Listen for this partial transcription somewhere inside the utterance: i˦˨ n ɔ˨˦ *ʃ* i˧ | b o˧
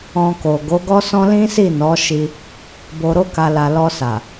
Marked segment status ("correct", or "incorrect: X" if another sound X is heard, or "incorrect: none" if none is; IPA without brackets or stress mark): correct